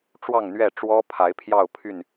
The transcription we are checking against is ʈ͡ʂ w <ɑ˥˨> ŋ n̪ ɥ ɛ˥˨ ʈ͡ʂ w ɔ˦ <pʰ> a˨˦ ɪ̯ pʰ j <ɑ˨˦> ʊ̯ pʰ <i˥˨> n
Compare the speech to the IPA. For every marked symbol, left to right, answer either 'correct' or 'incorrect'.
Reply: correct, correct, incorrect, incorrect

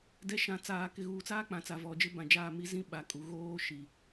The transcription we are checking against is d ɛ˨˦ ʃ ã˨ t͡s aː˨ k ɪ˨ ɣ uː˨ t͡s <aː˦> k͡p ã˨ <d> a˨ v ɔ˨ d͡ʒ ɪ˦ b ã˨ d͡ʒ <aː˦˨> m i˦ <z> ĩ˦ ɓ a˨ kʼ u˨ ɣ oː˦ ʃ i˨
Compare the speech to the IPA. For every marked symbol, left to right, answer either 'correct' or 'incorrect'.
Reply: correct, incorrect, correct, correct

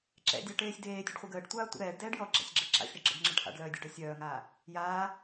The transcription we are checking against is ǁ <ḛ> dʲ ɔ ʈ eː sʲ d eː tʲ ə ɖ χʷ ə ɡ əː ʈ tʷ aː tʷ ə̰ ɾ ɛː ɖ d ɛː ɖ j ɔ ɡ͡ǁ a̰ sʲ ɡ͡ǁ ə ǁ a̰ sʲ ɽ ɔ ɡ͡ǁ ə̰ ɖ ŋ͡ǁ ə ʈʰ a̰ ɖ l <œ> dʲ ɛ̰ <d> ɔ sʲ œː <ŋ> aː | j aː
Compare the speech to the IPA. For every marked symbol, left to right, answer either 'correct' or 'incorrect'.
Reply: incorrect, incorrect, incorrect, correct

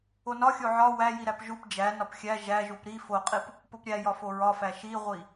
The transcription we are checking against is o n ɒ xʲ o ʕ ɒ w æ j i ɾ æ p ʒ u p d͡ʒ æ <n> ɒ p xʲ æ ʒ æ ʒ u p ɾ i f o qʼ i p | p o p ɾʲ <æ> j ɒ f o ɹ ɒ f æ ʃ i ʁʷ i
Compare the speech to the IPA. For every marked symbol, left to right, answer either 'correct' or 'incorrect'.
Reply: correct, correct

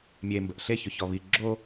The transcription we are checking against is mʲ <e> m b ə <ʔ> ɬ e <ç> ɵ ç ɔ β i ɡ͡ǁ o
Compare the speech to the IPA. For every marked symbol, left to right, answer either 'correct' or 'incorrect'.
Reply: correct, correct, correct

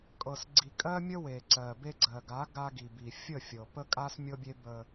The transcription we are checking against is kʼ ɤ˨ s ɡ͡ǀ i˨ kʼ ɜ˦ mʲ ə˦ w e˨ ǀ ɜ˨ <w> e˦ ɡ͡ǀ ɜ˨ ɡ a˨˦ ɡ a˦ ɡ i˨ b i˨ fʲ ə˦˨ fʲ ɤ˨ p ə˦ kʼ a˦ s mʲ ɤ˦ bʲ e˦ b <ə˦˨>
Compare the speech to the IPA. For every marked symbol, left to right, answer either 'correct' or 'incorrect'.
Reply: incorrect, incorrect

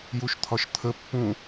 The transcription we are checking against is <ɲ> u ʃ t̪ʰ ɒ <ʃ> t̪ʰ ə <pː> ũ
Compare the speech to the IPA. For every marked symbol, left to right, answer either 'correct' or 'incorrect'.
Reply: incorrect, correct, correct

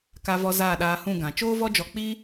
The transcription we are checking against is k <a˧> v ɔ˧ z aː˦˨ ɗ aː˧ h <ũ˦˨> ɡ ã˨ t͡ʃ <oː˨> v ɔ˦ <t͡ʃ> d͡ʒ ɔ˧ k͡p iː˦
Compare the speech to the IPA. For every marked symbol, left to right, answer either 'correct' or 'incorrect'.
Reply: correct, correct, incorrect, incorrect

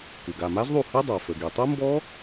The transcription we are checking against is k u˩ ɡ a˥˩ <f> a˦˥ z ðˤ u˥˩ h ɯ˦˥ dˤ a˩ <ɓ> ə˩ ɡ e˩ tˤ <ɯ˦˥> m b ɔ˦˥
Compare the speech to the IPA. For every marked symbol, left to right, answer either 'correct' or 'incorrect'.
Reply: incorrect, incorrect, correct

